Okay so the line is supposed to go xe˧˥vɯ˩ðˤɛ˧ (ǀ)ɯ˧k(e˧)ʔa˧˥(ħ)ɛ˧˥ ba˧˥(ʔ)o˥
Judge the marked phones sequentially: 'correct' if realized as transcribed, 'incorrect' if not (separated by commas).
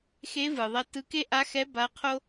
incorrect, incorrect, incorrect, incorrect